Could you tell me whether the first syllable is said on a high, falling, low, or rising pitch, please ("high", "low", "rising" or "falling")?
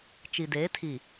low